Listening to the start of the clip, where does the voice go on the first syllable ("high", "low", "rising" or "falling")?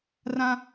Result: high